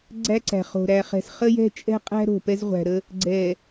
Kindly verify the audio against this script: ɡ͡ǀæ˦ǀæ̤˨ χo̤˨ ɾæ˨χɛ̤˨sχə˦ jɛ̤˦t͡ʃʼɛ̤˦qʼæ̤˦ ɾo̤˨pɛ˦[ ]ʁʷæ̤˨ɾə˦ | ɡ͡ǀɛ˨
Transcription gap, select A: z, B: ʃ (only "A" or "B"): A